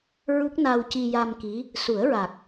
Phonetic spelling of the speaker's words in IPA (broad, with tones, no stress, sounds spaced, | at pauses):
ɹ u˦˥ k̚ n a˧ w c i˧ j a˧ m k i˧˥ | s u˨˩˦ ə̯ ɹ a˨˩ k̚